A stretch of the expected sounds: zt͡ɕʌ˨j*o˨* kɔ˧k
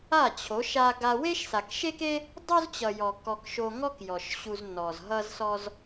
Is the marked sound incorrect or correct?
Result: incorrect: ɔ˨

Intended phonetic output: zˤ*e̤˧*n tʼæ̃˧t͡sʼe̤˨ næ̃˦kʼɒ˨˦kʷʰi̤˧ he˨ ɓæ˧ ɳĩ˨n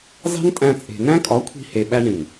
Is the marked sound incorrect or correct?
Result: incorrect: e̤˦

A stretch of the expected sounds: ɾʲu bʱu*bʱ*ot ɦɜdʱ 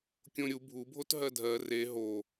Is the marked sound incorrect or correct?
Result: correct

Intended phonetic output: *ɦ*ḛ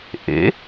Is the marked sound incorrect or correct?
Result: incorrect: ʔ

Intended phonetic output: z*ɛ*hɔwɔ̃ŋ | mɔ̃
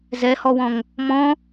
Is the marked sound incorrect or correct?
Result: correct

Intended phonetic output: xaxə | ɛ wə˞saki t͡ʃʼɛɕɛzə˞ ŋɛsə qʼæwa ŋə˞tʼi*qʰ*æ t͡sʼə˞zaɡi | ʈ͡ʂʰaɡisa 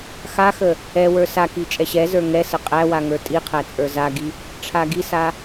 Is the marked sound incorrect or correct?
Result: correct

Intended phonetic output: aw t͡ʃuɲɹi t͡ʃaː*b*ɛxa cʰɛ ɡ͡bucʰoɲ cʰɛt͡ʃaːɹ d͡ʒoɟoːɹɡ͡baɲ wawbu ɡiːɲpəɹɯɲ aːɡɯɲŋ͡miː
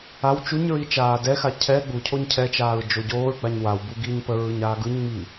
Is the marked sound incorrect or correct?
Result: incorrect: d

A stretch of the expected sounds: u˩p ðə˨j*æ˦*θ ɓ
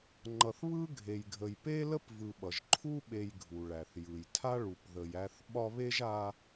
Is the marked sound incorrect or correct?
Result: correct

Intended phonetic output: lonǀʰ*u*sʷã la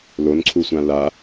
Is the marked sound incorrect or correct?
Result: correct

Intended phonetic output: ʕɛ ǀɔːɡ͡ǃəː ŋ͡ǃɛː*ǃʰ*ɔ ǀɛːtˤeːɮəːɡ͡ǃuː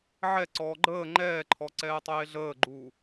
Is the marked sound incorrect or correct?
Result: correct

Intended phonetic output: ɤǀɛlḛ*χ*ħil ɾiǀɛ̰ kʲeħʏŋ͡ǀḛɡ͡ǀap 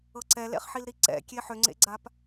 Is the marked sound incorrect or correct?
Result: correct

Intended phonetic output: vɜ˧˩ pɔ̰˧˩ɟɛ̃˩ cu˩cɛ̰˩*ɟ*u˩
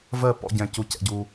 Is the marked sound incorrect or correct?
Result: correct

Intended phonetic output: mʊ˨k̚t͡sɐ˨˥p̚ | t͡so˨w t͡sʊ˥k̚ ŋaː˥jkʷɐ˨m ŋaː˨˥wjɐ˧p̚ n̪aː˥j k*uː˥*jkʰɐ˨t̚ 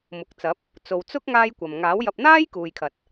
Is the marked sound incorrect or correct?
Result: incorrect: uː˨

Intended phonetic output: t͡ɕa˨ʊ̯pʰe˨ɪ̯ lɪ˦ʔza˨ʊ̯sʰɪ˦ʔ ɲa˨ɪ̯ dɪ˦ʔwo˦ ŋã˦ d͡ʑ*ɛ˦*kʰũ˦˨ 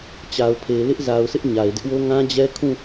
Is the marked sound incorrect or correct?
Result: correct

